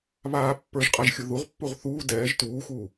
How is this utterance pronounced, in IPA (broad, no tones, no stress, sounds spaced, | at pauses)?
β aː pː ə˞ ʒ qʼ a ʒ xʲ u ð u ʁ pː u ʁ θ uː d ɛː ʒ t uː x uː